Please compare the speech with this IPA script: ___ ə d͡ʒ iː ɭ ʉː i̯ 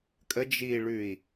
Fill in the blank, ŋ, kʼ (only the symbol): kʼ